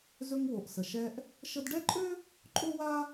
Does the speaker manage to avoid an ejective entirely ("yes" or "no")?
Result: no